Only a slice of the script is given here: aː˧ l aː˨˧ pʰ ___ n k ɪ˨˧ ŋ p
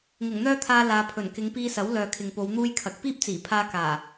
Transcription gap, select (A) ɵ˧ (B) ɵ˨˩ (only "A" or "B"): B